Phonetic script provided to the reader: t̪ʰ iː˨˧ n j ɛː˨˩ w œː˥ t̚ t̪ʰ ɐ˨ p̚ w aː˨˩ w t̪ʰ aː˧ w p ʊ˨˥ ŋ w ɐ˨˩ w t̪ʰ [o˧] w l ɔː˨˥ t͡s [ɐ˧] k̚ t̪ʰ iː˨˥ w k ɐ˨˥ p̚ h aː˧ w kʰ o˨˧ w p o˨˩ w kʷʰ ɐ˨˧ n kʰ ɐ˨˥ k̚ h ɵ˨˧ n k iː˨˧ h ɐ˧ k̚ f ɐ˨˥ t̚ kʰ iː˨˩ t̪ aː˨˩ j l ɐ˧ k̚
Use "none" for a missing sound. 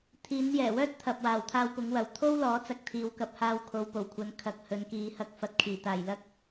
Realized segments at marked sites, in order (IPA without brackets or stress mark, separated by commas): o˥, ɐ˧